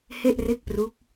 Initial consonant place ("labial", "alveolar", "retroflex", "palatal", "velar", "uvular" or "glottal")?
glottal